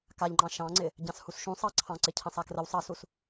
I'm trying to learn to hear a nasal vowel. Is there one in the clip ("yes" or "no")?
yes